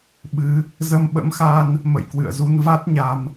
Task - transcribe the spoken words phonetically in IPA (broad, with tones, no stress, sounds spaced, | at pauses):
ɓ ɨ˨˦ | z ə˧ m ɓ ə̰˧˥ m x a˧ n | m ə̰˧˨ j k w ɨ̰˧˨ ə̯ z u˧ n v a˦˥ t̚ ɲ a˧ m